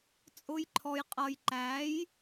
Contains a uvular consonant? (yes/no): yes